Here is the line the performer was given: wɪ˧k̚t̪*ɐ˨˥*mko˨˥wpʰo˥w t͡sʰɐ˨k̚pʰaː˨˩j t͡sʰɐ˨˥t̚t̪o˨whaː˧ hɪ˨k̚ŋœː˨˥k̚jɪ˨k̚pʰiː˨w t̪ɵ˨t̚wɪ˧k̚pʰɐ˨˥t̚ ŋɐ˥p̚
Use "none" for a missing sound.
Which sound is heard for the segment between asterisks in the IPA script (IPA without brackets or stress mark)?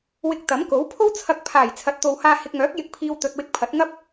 ɐ˨˥